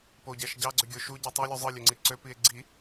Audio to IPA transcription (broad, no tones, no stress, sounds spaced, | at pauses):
p o ɟ æ ʃ ɟ ɑ ɡ͡ǀ ø ɡʲ o ʃ u ɟ i tˤ y lʲ u zˤ ɯ lʲ ø ŋ͡ǀ i ǀ ø p i e̯ ɡ͡ǀ i